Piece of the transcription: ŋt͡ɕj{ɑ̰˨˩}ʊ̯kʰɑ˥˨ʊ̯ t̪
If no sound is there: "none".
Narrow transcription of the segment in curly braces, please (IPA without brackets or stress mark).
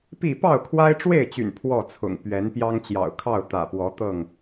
ɑ̰˨˩